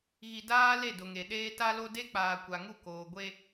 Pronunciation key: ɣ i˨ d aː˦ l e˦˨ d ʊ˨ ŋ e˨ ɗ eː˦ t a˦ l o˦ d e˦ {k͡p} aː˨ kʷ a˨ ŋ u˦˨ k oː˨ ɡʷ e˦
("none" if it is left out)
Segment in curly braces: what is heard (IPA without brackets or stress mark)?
k͡p